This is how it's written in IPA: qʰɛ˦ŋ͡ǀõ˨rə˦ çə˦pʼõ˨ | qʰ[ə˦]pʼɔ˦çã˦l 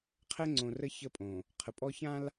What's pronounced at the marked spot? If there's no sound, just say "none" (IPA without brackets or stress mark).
ə˨